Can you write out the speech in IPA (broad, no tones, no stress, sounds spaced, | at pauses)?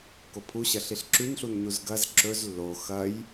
k o pʰ u ɕ ɐ ɬ i ɬ ǁ ʉ n ɬ u n ɲ u z ɡ ɐ z ǁ ɵ z lː o x ɐ j